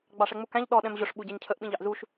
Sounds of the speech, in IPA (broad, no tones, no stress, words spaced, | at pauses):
ɡ͡bɑʂɛŋ͡mukæ̃ʎ ɗɔ ɗɛ̃mʑʊʂ ɓuɟɛɲcʰəʔ ɓĩʎɑʔzuʃ